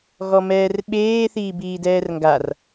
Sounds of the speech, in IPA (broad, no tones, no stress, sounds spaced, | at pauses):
ɣ ɔ m ɛː r ɓ eː θ iː b iː d ɛː r ŋ ɡ a r